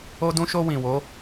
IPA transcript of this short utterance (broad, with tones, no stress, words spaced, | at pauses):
o˧dũ˧ʃo˧ wĩ˨wo˨˦